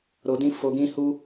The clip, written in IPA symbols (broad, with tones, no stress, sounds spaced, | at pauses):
ɾ o˧ d ĩ˦ f o˧ ɡ ĩ˦ h u˦